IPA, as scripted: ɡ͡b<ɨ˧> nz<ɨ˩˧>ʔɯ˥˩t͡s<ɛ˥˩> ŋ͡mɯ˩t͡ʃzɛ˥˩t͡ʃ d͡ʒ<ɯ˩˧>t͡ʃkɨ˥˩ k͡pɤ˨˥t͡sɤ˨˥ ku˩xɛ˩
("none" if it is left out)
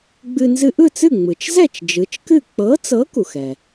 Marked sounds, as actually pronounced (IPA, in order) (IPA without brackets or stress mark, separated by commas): ɨ˧, ɨ˧, ɨ˥˩, ɯ˩˧